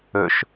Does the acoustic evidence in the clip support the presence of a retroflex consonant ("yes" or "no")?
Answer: no